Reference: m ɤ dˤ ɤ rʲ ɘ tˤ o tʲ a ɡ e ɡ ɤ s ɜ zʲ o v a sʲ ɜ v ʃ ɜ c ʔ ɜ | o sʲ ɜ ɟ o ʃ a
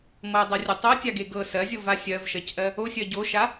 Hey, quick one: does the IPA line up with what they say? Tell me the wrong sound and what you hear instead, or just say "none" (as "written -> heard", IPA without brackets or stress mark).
none